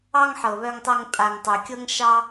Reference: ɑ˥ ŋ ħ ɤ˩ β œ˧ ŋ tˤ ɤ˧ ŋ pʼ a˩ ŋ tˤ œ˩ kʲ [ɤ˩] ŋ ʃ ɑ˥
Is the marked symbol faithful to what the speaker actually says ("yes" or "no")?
no